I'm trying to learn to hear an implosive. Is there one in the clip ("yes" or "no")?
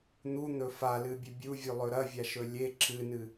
no